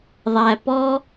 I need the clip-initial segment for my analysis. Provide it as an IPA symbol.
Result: ðˤ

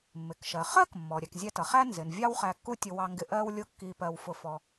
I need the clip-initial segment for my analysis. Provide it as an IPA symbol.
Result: mː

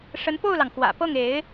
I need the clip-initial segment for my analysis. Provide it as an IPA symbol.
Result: ʂ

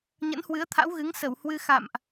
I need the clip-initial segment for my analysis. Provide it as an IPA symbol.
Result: ɲ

